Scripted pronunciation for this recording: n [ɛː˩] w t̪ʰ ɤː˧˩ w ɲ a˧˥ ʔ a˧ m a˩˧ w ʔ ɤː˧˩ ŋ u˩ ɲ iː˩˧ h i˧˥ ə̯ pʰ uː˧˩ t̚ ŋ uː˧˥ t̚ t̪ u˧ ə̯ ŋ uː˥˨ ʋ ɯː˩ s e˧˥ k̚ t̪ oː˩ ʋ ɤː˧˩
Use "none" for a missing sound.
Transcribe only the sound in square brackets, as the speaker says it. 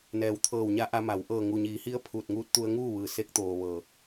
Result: ɛː˩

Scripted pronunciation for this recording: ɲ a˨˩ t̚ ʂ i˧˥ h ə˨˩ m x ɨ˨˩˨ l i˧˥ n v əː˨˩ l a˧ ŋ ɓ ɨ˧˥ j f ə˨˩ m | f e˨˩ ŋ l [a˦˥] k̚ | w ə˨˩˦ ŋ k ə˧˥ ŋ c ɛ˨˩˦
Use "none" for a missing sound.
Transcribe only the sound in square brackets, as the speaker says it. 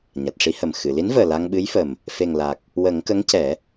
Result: a˨˩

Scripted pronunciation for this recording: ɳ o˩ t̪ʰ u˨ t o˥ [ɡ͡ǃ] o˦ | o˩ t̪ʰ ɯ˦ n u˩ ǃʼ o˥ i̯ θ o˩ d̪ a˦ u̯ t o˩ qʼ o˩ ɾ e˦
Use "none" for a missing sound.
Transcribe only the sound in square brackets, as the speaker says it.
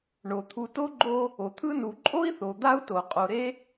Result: ɡ͡ǃ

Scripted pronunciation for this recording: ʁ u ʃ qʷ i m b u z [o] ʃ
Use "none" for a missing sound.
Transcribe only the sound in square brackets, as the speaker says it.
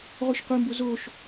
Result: o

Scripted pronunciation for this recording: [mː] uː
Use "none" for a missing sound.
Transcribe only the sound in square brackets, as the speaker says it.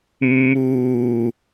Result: mː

